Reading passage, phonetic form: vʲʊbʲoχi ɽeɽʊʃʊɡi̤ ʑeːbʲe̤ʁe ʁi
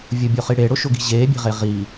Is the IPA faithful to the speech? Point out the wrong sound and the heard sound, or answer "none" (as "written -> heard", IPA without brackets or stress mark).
none